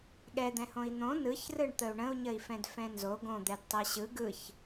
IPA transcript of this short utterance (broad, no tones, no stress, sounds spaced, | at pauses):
ɠ ɛ d̪ ɛ̃ h õ i̯ n̪ õ n ɯ ç r ɯ ɳ t̪ ə u̯ ɳ ə̃ u̯ ɲ ə i̯ f ɛ̃ d f ɛ̃ n z o ɡ õ d̪ ɛ d tˤ ɛ ɕ ɯ ɡ ɯ ç